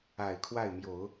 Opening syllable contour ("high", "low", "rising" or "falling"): low